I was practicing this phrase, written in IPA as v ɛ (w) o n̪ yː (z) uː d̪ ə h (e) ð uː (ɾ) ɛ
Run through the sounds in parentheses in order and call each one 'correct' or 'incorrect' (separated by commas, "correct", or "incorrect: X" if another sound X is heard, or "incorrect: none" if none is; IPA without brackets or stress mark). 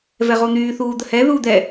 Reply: incorrect: ʁ, incorrect: θ, incorrect: ɛ, incorrect: d̪